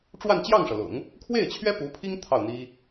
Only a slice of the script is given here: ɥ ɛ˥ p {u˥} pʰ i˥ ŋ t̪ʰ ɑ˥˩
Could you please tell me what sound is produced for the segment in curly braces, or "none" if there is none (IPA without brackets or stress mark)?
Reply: u˧˥